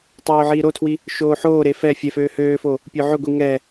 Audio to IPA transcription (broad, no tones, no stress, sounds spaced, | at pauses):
tˤ øː ʕ iː ɾ o tʰ w i | ʃ oː ħ oː ɾ e f ɛ fʲ ɛ f øː h øː f o | pʲ ø ʕ ø ɡʷ i ŋ ɛ